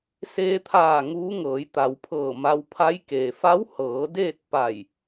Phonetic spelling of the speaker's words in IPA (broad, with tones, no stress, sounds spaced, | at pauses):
s eː˧ t̪ʰ aː˧˩ ŋ uː˧˥ ŋ ɤː˩˧ j t̪ a˩˧ w pʰ ɤː˧˩ m a˧ w pʰ a˧˥ j k eː˩ f a˧˥ w h ɤː˩˧ d eː˥˨ t̚ p a˧˩ j